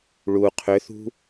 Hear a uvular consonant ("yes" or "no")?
yes